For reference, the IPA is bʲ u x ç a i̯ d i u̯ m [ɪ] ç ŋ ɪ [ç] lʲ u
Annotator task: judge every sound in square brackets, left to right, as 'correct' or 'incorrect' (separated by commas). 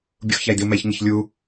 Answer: incorrect, correct